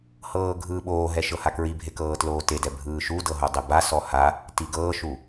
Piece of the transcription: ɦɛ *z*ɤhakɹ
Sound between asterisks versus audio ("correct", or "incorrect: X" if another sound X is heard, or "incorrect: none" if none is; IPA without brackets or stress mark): incorrect: ʃ